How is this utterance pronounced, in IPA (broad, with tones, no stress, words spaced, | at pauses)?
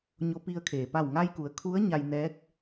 ɲo˧pi˧ə̯kʰeː˩ pa˧˩wŋa˧jku˩ə̯ kʰu˧˥ə̯ ɲa˧jnɛː˧˥k̚